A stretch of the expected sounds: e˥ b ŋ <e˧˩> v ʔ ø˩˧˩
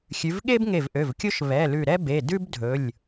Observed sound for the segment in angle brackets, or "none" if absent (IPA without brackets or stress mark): e˧˩